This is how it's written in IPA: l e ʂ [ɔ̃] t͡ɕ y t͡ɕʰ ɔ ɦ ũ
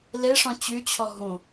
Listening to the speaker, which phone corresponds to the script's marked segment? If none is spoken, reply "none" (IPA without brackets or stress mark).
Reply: ɔ̃